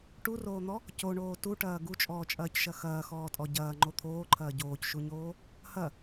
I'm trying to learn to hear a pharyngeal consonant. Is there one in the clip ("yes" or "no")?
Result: no